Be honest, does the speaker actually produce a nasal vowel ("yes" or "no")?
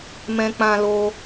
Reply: yes